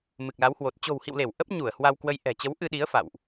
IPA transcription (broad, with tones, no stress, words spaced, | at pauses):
mɨ˨˩k̚la˨˦whwo˨˩t̚ t͡ɕo̤˨˩whḭ˧˨wle˧˩w ʔə˦˥p̚ɲu˧˩ə̯ hwa˧wkwə˧j ʔɛ̤˨˩t͡ɕə˨˦w ʔɨ˧ɗi˨˦ə̯ fa̰˧˨wʔ